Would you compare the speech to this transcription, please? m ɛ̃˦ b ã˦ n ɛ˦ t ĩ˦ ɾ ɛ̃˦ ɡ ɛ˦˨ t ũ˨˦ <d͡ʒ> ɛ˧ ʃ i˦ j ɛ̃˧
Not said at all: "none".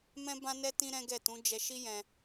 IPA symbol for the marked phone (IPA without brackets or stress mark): d͡ʒ